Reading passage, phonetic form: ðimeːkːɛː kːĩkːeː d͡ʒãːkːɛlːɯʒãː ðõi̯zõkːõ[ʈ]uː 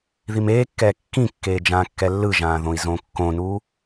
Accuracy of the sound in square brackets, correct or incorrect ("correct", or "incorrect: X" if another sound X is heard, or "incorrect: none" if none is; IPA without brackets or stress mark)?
incorrect: n